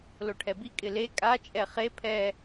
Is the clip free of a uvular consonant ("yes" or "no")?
no